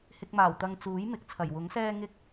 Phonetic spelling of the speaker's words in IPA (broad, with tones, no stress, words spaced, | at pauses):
hɪ˧k̚maː˨˩wt̪ɐ˧ŋ t͡suː˨˥jmɪ˨k̚t͡sʰɐ˨˩j wʊ˨˥ŋsɛː˥ ŋɪ˥k̚